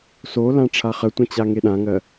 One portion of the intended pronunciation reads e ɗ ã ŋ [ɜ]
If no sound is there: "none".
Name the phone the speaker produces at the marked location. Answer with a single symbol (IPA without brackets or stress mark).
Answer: ɜ